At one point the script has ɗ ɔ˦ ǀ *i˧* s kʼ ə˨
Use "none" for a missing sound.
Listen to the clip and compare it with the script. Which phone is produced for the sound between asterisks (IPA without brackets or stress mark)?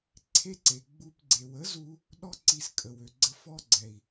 i˧